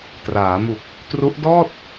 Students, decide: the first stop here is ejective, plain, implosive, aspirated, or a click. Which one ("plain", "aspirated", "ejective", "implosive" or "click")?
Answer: plain